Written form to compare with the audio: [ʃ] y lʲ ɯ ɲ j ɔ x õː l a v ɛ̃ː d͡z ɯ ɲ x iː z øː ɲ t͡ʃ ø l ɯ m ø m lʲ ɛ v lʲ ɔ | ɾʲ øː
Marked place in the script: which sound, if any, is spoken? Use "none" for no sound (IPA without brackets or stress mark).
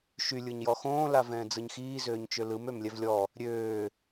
ʃ